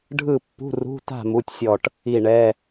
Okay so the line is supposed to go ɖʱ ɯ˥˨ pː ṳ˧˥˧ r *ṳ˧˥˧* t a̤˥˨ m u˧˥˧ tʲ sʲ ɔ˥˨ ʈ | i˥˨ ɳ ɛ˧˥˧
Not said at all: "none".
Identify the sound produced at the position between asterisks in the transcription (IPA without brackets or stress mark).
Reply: ṳ˧˥˧